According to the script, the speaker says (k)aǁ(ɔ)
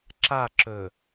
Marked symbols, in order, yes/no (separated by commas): no, no